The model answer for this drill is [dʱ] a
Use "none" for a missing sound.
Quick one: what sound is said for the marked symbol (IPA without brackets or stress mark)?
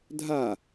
dʱ